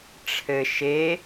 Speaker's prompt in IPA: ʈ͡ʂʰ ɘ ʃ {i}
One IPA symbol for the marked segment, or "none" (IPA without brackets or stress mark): e